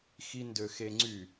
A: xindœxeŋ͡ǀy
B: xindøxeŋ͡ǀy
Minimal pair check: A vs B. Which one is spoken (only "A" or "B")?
B